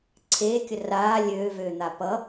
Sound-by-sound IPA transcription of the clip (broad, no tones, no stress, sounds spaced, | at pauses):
ǀʰ eː kʲ ə r aː lʲ øː v øː n̪ a p ʌ